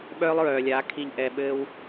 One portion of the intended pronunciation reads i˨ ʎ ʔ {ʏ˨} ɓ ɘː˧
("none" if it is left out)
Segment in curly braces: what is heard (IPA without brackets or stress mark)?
ɛ˨